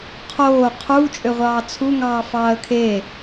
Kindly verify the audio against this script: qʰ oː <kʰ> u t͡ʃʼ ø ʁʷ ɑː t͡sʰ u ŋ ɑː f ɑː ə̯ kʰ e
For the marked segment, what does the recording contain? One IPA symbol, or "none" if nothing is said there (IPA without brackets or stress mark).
qʰ